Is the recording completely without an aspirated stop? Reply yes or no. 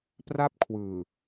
no